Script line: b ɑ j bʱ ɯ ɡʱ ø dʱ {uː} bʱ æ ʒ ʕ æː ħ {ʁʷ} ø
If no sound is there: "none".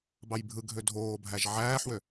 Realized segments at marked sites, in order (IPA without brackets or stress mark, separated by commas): oː, w